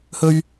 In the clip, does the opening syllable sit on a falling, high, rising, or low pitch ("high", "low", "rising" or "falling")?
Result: high